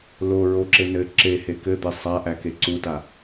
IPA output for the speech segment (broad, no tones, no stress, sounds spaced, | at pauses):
l o ɹ o ǁ e n ɘ ǁ e h e k ɘ d̪ e sˤ a ʔ æ k e ǀ u t a